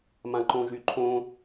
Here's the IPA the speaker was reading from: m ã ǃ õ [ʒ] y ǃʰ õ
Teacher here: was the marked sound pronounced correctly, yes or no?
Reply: yes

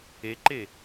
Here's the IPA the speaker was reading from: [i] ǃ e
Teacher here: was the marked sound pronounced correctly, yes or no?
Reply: no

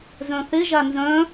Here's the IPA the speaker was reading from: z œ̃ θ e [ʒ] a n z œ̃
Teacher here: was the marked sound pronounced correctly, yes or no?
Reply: yes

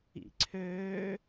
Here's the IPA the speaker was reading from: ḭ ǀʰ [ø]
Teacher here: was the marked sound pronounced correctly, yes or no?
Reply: no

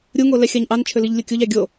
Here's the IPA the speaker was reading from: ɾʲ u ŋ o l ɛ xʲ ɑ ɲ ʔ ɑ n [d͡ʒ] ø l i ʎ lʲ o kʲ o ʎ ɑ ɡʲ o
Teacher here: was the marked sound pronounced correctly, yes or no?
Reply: no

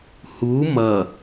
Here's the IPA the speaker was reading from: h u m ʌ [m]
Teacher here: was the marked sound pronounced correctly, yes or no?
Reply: no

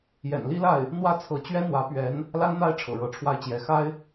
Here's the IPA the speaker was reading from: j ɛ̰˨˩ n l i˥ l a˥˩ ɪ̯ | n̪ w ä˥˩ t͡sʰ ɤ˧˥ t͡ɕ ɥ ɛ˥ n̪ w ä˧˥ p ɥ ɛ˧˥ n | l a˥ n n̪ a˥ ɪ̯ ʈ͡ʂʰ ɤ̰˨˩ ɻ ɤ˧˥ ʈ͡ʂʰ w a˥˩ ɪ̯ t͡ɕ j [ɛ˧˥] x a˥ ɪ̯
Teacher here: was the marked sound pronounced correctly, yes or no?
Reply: yes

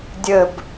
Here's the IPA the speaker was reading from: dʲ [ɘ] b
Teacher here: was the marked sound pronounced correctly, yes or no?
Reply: yes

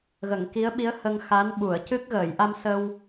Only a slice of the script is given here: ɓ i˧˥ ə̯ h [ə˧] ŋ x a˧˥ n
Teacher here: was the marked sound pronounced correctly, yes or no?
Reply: yes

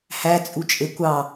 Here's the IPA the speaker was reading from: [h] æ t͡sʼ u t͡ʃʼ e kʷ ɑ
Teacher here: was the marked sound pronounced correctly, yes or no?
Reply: yes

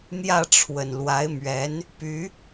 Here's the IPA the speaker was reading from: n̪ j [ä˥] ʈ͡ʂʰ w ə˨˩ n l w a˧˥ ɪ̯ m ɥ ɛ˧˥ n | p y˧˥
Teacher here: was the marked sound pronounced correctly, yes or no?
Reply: no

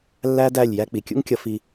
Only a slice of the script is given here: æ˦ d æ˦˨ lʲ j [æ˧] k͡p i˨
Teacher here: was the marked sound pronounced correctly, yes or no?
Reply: yes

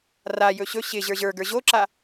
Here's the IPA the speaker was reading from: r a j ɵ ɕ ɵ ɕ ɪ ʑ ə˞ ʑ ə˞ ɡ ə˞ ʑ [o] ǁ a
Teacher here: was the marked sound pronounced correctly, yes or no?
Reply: yes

